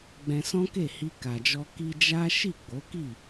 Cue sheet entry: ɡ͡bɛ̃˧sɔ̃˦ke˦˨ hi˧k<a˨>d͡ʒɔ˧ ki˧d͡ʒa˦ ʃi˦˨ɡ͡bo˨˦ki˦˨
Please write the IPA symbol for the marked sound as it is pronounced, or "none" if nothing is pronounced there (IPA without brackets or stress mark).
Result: a˨